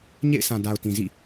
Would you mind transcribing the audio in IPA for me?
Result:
ɲ ḛ˦˨ ɪ̯ s ã˨ d a˨ ʊ̯ t ĩ˨ z ḭ˦˨

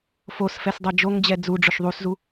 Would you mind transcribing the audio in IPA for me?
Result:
f o s f ɛ s dˤ ɛ d͡ʒ o ŋ d͡ʑ ɛ d͡z u ɖ͡ʐ ʊ ʃ ðˤ u s z u

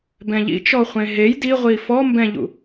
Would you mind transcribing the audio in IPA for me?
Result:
b ɛ̃ ʎ ḭ t͡ʃ ɔ χʷ ẽ ɦ e j d i ʁʷ i f ɔ m b ɛ̃ ʎ ṵ

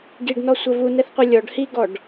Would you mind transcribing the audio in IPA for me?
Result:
ɡ i ɖ n ɔ sʷ ɛ v u n ɛ θ qʷ ɛ lʲ ɔ ɖ h i ɡ ɔ ɖ

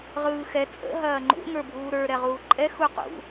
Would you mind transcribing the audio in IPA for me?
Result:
ʁ ɯː x ɛ t͡sʼ ə̰ ɦ ɐː ŋ͡ǃ ṵ ŋ ə˞ bʱ uː ɾ ə˞ ɾ ɛ ʁ uː ǃʼ ɛ x u q ṵ

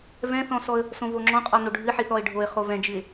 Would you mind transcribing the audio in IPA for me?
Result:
v ɛ̃ θ ɔ̃ s ɔ ə̯ | s õ v o ŋ͡ǁ ɔ̃ qʼ ɔ n o ɖʱ ɨ ħ i θ ɔ ɪ̯ ɖʱ o ɪ̯ χ o v ɛ̃ d͡ʒ ɨ ɪ̯

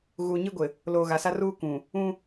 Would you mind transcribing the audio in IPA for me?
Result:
ɣ uː˨ ɲ i˦ ɡʷ ɪ˨ | l oː˨ ɣ a˨ s a˦ r uː˦ k ũ˨ | ũ˦

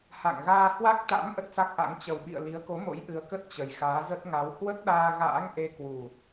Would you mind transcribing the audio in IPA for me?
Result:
h a̰˧˨ ŋ ɣ aː˧ h w a˦˥ k̚ t̪ a̰˧˥ m ʔ ə˦˥ t̚ s a˦˥ k̚ ʔ a̰˧˥ ŋ t͡ɕ ə˨˩ w ɓ ḭ˧˨ ə̯ l i˨˦ ə̯ k o˨˦ m o̰˧˥ j ʔ ɨ˨˦ ə̯ k ə˦˥ t̚ t͡ɕ ə˨˩ j x aː˨˦ z ə˦˥ t̚ ŋ a˨˦ w h w ə˦˥ t̚ ɗ aː˧ ɣ a̰ː˧˥ ŋ ʔ e˧ k w u˨˩

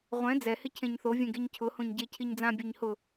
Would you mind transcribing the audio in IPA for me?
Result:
ʁʷ ɛ̃ d͡z ɛ h ɪ cʰ ẽ ɲ θ o vʲ ẽ ɡ e ɲ cʰ ʊ h õ ɲ ɟ e cʰ i ɲ d͡z ã bʲ e ɲ h ʊ

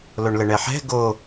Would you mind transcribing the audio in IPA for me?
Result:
l o ɳ l ə ɳ ɛ ħ ɛ̤ ɡ o

